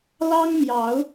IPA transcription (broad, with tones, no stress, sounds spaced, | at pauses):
l ɑ˦ ŋ m j ɑ˨˦ ʊ̯